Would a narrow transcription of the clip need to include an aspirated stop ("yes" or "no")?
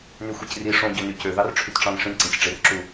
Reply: yes